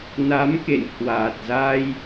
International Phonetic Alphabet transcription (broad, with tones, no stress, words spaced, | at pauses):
na˨˦mkḛ˧˨nhwaː˨˩t̚za˧j